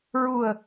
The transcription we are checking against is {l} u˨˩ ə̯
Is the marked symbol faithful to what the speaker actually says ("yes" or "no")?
no